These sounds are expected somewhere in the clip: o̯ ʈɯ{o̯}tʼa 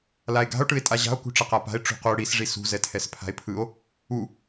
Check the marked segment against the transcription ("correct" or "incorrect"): incorrect